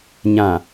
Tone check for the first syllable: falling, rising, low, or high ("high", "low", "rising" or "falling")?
low